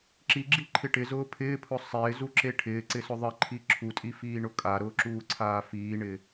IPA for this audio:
ǁ i ɡ͡ǁ i ǃʰ ɪ ʈ ɪ z ʊː pʰ ɪː pʰ ʊ sˤ ɪː z u ǁ e ʈʰ ɪː ǀ ɪ s ʊ ðˤ ɪ ǃʰ i ǁʰ u tʼ i f iː ɳ ʊ kʼ a ɾ ʊː ǁ uː ǀʰ aː f iː ɳ ɪ

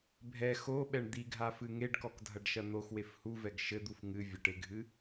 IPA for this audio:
bʱ ɛ x o ɓ ɛ ɳ d̪ i ɡʱ a f ɨ ŋ e ɖ k ɔ k dʱ ɐ ɖ ʃ ɐ n̪ o x w e f h u v ɛ ɡ ʃ ɘ d̪ u f ŋ ɨ vʲ ɐ ʈ e ɡʱ ɨ

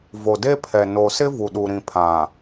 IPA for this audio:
v o˨ d e˦ pʰ ɛ˨ n o˨ s ɪ˦ v u˨ ɗ u˨ ɾ ĩ˨ pʰ ã˨

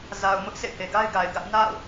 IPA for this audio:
z a˨ ʊ̯ m ʊ˦ ʔ s ḛ˦˨ h e˨ ɡ a˦ ɪ̯ ɡ a˨ ɪ̯ ɡ ä˦ ʔ n a̰˦˨ ʊ̯

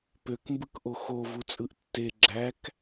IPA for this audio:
p ø k m b ɯ k ʔ o x o v u t͡sʼ ɯ ʔ tː e ɡ͡ǁ æ k

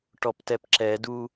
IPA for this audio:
ʈ ɔ p t ɛ p ǁ ɛ d u

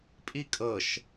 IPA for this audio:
pʼ i kʼ ɤ ʃ

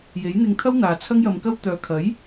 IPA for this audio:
j e˨˥ j n̪ ɪ˧ ŋ t̪ʰ ɐ˥ w n̪ aː˨ t͡sʰ ɐ˥ ŋ j ɐ˧ m k ɐ˥ w t̪ œː˨ kʰ ɐ˨˥ j

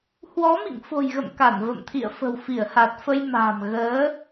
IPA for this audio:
h w ɔ˨˦ m ḭ˧˨ ŋ f o̤˨˩ j ɣ ə̰˧˨ m k a˧˩ n v ə̰˧˨ m t̪ʰ ḭ˧˨ ə̯ f ə̤˨˩ w f i˧˩ ə̯ h a˨˩ t̚ f ə˧ j m a̤ː˨˩ m ɣ əː˨˦

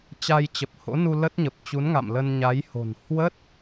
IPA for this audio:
t͡ɕ a˧ j t͡ɕ ə˨˩ p̚ h o̰˧˥ n u˧ l ə˦˥ t̚ ɲ ə˨˩ p̚ t͡ɕ u˨˦ n ŋ a̰˧˨ m l ə˧ n ɲ a˨˦ j h o̤˨˩ n h w ə˦˥ t̚

